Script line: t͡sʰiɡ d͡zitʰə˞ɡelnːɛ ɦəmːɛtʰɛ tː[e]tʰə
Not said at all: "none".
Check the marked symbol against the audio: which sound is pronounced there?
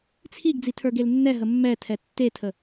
e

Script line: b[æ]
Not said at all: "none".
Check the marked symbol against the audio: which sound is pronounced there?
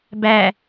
æ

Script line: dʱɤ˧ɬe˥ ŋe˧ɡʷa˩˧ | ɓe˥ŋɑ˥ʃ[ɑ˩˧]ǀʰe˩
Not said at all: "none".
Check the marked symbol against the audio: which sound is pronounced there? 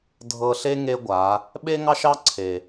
ɑ˥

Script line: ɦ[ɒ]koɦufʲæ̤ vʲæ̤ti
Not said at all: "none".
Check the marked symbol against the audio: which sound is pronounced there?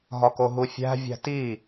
ɒ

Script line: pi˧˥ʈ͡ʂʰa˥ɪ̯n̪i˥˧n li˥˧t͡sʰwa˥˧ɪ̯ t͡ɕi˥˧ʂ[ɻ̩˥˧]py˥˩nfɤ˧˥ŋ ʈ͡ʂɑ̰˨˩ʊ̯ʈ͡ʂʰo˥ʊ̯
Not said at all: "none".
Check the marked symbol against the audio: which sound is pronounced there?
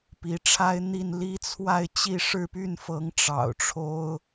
ɻ̩˥˧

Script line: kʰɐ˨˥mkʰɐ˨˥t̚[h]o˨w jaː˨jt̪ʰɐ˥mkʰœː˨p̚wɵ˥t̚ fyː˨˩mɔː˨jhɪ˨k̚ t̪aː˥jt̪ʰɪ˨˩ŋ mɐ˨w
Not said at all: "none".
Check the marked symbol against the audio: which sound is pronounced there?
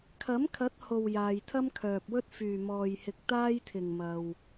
h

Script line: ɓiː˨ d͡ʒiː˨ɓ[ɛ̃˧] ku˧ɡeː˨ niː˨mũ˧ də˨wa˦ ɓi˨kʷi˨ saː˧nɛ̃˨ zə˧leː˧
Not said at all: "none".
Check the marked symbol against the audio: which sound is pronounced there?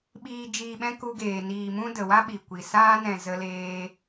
ɛ̃˧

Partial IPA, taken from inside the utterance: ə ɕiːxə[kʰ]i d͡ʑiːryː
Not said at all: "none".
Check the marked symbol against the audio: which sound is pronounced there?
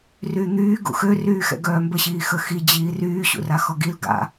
x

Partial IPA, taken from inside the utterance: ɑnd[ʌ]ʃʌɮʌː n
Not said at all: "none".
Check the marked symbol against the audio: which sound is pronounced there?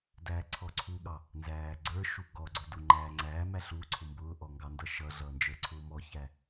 ʌ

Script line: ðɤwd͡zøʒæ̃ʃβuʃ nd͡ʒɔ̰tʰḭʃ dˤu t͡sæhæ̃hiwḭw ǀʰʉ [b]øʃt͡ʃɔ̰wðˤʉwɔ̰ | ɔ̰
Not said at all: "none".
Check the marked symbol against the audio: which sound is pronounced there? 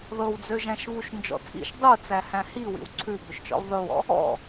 b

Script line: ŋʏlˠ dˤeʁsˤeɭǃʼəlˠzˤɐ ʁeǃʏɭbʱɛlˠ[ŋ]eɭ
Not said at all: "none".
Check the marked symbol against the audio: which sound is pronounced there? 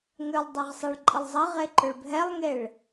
ŋ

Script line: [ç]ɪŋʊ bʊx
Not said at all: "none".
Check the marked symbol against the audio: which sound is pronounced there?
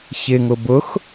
ç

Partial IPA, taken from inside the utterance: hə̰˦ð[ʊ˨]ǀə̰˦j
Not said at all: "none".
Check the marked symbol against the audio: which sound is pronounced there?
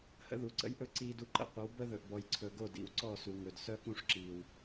u˨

